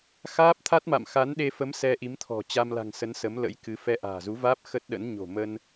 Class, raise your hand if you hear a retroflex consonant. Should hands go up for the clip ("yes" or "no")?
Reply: no